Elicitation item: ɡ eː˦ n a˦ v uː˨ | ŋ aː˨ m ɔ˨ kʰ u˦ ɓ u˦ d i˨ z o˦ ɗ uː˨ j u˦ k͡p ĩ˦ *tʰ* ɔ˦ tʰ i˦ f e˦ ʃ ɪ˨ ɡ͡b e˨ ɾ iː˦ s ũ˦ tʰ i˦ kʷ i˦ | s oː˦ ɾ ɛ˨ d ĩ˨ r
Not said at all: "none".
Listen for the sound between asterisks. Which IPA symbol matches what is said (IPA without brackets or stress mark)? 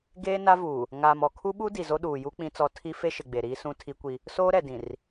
t͡s